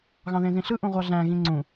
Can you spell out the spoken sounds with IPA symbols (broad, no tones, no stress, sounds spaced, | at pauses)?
ɣ ɑ̃ ð ẽ z ĩ ɬ ɯ ʔ ũ ʁʷ ɑ ɮ æ̃ ɣ ĩ ŋ͡ǀ ũ